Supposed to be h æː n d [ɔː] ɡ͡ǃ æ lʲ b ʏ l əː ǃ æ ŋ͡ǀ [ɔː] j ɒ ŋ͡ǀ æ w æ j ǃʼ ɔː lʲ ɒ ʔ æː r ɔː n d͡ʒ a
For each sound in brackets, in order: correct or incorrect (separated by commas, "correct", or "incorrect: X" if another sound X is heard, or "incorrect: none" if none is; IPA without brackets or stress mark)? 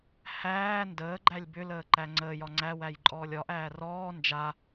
incorrect: əː, incorrect: əː